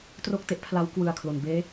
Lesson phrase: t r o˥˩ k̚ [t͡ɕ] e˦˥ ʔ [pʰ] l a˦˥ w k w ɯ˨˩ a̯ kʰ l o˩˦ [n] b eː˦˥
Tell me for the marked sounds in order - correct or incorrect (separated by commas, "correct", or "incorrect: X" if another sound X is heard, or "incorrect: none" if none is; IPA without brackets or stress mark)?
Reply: incorrect: t, correct, correct